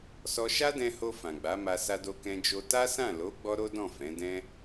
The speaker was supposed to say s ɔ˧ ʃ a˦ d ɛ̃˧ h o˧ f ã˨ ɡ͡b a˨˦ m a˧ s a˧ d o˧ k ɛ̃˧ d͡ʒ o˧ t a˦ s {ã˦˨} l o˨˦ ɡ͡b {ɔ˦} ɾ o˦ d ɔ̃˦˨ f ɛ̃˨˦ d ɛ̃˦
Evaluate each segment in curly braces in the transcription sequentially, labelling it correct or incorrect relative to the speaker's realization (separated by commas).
correct, correct